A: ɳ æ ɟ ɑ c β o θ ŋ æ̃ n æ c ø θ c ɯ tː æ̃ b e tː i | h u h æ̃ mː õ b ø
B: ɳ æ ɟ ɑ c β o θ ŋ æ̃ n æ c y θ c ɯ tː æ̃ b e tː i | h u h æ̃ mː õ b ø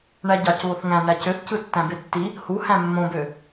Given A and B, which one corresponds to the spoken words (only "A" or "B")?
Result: A